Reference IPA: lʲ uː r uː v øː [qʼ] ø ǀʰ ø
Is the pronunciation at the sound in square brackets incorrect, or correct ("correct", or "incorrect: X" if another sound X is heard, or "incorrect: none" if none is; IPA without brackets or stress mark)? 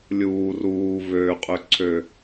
correct